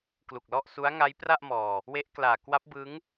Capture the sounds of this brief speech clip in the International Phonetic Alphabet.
klu˨˩k̚lɔ˥˩ʔsu˦˥a̯ ŋa˦˥jpra˥˩ʔmɔː˨˩ | we˦˥ʔklaː˨˩ kwa˦˥p̚ bɯ˦˥ŋ

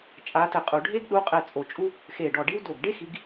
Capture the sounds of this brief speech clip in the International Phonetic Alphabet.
t͡ʃʼa˨˦tɘ˧˩˧ qʼu˧˩˧ɖʱe˥ɡ ɗu˨˦qʼɘ˧˩ t͡sʼo˧˩t͡ʃʼu˥ | xe˧˩ɖɔ˧˩ɖi˥w do˧˩ɡ ɖe˥xi˨˦ɡ

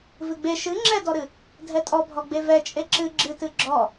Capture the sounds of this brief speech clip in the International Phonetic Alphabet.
vɨɡ͡be ʃɨ ŋ͡ǁɛdɔɾɨ | dʱɛtʼɔbʱɔ ɡ͡bevɛ t͡ʃʼeǁɨ ɡ͡ǁɨtɨ ɡ͡ǁɔ

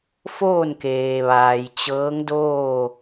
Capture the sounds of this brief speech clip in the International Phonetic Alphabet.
foː˥˨nkeː˩ʋaː˩j t͡ɕɤː˧˥ŋdoː˥˨

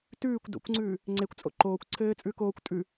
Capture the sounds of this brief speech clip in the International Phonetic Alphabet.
tʉːkʷ do̰kʷŋ͡ǀʉː | ŋ͡ǀekʷt͡sʼo̰ ǃoːkʷ ǀʰɘːt͡sʼʉːk oːkʷ tʼʉ

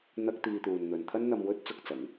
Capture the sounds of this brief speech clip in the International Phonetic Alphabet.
n̪ɐ˥k̚ t̪iː˧t̪uː˨n n̪ɵ˧n t̪ʰɐ˥nn̪ɐ˧mwɵ˥t̚ t͡sʊ˧k̚t͡sɐ˨˥ŋ

